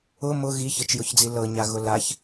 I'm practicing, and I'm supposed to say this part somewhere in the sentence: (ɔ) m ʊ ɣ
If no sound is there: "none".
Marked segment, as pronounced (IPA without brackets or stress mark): ʊ